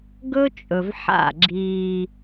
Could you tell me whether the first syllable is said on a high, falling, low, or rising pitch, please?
high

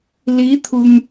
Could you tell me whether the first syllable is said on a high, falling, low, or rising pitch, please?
rising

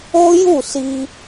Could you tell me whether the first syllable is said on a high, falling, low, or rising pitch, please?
high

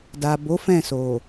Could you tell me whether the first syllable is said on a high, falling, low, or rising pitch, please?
low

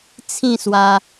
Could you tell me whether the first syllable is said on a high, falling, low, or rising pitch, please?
falling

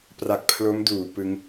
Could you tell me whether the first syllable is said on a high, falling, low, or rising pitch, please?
low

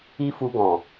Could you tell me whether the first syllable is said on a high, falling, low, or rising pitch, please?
high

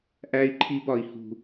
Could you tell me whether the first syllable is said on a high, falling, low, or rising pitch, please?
high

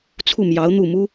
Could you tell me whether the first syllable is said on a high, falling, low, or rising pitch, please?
falling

